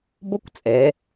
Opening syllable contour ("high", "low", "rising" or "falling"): high